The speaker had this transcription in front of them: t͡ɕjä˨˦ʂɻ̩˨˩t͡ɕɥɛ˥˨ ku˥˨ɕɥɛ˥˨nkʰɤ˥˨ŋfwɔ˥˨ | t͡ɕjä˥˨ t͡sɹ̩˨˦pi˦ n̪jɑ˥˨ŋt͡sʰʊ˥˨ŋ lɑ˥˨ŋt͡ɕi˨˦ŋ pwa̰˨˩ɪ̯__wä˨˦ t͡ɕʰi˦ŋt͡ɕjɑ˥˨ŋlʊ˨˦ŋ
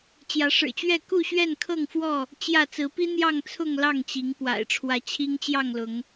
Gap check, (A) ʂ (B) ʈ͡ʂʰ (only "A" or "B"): B